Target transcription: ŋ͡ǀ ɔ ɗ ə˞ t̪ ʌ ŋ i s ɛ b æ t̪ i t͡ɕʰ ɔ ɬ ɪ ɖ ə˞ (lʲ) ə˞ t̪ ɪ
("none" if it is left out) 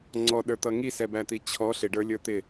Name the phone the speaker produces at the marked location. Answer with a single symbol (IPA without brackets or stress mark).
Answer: lʲ